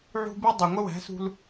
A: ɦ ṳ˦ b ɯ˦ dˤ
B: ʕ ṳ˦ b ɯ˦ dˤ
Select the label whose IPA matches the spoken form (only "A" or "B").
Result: B